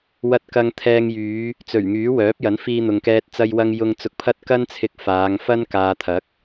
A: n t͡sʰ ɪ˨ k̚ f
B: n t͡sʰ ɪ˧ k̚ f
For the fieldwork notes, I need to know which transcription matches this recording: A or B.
B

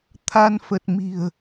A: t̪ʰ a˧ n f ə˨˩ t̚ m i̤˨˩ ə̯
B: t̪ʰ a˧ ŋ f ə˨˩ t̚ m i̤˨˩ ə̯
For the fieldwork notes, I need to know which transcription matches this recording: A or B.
A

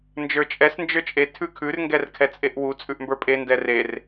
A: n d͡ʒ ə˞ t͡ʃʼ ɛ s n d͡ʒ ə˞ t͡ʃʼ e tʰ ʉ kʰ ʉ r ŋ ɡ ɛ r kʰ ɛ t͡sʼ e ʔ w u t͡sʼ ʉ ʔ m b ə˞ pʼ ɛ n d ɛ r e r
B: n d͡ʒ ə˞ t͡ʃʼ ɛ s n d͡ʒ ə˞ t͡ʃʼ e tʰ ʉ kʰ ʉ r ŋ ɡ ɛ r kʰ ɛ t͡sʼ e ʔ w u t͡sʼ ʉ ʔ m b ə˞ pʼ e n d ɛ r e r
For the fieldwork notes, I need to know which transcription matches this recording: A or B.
B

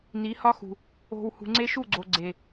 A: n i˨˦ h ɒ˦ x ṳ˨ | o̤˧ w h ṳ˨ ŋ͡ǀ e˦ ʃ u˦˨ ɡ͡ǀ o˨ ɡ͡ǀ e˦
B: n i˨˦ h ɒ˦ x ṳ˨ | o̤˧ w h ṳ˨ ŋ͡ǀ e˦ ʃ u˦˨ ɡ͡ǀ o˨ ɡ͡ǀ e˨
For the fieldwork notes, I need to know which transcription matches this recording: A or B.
B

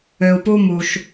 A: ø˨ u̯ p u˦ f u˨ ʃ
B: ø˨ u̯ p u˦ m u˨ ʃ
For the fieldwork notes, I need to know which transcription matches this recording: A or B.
B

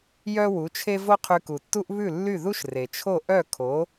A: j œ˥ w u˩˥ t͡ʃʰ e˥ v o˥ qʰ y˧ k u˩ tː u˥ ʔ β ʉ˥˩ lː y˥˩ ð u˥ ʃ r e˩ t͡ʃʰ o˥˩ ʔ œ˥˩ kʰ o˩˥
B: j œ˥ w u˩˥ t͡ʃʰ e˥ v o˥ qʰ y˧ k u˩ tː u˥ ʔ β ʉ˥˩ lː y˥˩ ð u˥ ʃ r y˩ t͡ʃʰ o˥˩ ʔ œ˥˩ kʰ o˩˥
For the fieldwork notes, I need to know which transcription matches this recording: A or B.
A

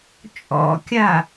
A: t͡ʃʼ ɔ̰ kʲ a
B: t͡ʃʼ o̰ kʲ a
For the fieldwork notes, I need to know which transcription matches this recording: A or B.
A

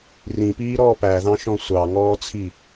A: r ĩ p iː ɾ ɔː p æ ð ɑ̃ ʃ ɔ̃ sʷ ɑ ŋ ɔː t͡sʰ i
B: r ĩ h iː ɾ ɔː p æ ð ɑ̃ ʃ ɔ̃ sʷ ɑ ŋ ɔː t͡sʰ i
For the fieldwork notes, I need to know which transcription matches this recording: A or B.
A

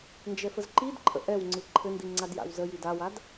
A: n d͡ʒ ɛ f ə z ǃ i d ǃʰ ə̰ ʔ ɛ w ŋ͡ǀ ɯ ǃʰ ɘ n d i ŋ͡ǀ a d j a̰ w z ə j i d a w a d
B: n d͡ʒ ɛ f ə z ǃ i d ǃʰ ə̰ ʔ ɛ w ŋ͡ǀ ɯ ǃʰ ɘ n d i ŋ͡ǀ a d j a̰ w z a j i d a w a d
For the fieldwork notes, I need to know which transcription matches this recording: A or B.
A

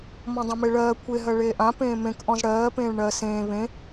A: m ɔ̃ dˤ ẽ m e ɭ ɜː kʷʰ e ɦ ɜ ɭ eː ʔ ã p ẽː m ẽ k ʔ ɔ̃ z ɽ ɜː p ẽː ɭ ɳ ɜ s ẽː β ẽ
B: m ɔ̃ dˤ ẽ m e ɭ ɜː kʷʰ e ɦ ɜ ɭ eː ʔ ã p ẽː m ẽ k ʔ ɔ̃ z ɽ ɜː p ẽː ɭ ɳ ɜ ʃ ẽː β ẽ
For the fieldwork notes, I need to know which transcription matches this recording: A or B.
A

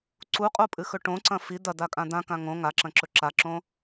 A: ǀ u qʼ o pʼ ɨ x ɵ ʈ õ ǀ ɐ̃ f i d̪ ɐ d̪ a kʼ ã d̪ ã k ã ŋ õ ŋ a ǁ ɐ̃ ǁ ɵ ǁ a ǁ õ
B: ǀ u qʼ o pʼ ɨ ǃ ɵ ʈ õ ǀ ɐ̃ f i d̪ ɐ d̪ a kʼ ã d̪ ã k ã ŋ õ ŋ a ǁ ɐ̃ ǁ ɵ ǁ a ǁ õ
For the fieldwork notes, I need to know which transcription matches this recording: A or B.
A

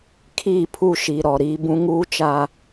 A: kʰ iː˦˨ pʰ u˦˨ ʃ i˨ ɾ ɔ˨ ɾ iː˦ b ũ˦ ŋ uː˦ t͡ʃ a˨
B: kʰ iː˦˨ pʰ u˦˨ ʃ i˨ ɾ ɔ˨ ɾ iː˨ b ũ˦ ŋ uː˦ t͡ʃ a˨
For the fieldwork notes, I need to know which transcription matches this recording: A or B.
A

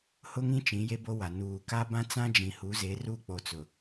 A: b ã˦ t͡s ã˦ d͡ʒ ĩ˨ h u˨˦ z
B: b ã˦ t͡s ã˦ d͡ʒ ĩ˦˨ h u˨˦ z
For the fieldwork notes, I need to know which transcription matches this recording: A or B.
A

